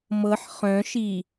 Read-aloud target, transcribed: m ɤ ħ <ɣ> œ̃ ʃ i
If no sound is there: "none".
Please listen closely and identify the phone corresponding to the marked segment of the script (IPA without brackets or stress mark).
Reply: χ